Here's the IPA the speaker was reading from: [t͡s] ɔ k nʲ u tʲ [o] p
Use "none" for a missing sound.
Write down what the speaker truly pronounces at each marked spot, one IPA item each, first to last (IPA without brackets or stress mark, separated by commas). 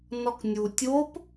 n, o